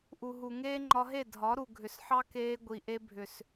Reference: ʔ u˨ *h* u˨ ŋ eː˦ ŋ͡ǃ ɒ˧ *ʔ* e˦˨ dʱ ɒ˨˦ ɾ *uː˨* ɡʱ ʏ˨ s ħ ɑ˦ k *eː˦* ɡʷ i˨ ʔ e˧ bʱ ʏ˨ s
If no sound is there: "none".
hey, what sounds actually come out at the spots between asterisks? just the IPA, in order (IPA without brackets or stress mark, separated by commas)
ɦ, ɦ, u˨, eː˧